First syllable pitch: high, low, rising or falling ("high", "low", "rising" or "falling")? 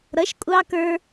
rising